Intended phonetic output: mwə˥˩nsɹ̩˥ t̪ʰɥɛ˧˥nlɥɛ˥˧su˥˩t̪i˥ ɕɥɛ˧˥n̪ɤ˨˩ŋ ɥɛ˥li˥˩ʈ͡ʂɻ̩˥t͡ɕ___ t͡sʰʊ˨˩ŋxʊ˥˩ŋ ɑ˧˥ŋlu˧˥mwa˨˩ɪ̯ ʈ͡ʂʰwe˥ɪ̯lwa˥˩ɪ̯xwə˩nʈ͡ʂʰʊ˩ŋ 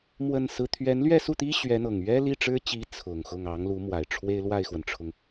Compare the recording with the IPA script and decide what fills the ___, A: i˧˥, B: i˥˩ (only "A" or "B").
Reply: A